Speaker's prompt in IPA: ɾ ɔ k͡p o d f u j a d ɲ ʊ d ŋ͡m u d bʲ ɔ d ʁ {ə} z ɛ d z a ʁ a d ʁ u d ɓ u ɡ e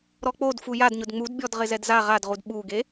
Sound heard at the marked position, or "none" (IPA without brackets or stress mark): ɪ